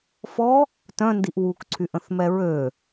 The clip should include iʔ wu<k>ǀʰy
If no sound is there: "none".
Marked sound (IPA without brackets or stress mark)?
k